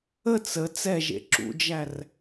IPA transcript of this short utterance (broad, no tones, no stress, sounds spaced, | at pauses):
ə t͡s ə t͡s ɛ ʒ ḛ ǁ ṵ d͡ʒ æ r